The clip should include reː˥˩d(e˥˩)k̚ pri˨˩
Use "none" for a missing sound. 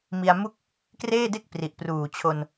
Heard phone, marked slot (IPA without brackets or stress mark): e˥˩